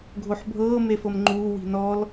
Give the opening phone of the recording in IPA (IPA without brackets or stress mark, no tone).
ɡʱ